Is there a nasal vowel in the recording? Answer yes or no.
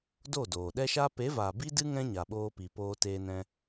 yes